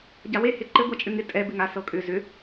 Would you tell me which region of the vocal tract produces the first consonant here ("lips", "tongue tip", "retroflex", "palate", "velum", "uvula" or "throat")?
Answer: palate